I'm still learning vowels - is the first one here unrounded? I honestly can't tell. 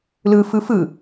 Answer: yes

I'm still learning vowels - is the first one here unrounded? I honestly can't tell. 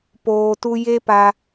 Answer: no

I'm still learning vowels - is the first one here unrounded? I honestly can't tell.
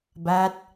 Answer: yes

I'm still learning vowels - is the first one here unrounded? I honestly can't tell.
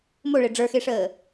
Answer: no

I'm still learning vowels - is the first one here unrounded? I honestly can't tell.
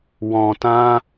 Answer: no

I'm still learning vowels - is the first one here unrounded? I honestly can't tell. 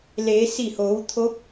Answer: yes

